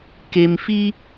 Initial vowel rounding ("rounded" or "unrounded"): unrounded